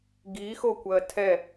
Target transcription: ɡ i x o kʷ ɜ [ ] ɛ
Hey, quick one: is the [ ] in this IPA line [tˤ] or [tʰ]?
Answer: tʰ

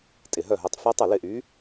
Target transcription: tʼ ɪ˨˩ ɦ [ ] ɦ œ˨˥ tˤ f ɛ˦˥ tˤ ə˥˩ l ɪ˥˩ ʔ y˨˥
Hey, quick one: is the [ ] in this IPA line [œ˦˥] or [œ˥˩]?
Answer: œ˥˩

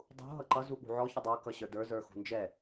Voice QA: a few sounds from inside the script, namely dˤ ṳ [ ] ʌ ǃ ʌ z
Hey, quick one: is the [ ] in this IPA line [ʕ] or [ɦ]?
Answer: ɦ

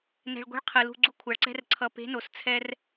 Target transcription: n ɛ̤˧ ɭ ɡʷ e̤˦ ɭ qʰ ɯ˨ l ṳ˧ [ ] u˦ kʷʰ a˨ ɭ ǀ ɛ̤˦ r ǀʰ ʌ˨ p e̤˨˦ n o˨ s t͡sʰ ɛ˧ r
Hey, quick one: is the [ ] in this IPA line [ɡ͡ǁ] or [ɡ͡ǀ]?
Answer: ɡ͡ǀ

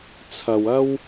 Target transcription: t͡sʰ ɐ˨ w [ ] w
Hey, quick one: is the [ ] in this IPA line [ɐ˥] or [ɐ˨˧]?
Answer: ɐ˥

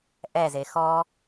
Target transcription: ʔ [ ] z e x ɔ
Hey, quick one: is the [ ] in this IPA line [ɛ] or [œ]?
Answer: ɛ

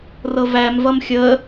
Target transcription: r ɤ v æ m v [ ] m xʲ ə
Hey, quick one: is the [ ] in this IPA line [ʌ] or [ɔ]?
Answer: ʌ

